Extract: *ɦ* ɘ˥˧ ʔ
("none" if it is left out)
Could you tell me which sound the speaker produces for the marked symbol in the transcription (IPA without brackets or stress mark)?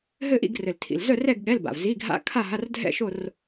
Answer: ɦ